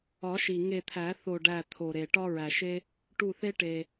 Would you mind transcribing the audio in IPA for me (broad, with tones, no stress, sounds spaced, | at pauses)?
ɒ˨˩˦ ʃ i˩ ŋ e˧˩ t̪ʰ æ˨˩˦ θ o˧˩ ɖ æ˧˩ t̪ʰ o˩ ɾ e˩ ʈ ɒ˦ ɹ æ˩ ʃ e˦ | ʈ u˧˩ θ e˦ ʈ e˩